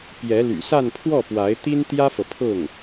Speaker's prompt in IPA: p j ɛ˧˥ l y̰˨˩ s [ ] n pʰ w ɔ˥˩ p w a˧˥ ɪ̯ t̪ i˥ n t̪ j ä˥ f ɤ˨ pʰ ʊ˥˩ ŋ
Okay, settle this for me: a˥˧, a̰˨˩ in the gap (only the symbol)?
a˥˧